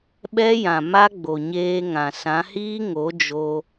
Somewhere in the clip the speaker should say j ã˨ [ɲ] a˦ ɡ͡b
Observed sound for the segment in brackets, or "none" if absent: m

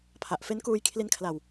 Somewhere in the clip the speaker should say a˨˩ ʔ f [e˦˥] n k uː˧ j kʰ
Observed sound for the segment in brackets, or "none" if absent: e˦˥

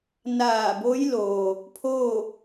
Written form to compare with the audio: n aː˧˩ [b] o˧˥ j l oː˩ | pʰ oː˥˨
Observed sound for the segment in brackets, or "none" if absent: b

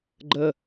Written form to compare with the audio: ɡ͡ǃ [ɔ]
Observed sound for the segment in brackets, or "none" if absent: ə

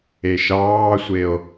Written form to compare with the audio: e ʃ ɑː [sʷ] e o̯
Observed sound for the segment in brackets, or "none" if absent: sʷ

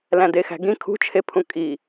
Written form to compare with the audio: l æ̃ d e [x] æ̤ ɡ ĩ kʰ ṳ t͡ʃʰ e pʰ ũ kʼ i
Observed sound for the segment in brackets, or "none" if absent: x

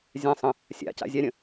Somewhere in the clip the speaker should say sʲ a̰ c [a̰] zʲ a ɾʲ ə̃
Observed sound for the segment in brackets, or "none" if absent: a̰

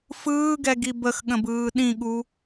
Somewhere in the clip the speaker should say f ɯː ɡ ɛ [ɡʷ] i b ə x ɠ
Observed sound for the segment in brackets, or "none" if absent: ɡ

